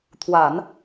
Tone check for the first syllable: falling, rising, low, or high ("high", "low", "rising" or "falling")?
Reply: low